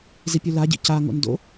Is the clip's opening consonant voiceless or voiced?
voiced